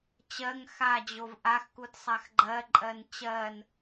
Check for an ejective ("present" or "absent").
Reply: present